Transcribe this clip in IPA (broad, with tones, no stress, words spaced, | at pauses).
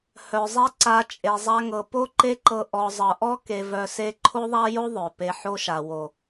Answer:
hœ˨zˤɛ˦ ǀa˧ t͡ʃʼe˨zˤa˧ŋɤ˨ po˦ǃe˦ǃɤ˧ ʔɔ˨zˤɤ˨ʔɔ˦ ke˧vœ˧se˦ ǃʰo˦ðˤa˦jo˦ ðˤœ˨pe˧ ħo˦ʃa˨wo˨